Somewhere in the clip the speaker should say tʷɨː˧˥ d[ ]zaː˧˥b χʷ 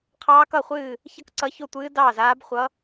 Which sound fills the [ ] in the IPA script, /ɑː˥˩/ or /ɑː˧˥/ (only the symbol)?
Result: ɑː˥˩